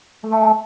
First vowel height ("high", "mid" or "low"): mid